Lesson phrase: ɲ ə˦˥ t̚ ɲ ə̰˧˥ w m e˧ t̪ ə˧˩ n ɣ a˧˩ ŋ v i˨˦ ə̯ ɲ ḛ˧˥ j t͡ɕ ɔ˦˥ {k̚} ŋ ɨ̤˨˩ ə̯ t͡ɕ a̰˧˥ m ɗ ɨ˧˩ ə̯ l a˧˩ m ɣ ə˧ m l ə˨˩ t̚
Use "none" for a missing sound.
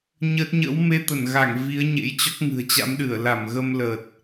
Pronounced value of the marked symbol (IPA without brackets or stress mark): k̚